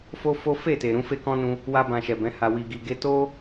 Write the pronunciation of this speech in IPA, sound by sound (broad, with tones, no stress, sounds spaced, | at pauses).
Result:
f o˦ f o˦ f e˦˨ t e˨ ɾ ũ˨˦ f e˦ k ɔ̃˦ n ũ˧ | w a˦ b ã˧ ʃ ɛ˨ b ɛ̃˨˦ h a˧ w i˧ ɡ i˧ ɡ e˦ t o˦